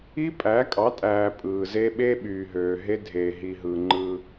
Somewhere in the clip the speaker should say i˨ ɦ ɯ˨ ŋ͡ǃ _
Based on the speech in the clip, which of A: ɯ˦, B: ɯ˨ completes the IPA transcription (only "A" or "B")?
A